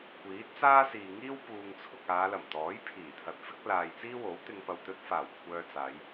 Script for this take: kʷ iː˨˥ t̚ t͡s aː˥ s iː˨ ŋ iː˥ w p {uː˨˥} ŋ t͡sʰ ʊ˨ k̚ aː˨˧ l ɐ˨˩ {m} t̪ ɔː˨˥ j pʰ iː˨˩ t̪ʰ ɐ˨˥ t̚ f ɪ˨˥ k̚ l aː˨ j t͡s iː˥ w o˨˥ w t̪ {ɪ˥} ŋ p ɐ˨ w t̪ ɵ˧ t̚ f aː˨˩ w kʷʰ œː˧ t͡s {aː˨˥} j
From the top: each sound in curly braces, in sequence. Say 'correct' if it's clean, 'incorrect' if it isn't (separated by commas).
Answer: incorrect, correct, incorrect, incorrect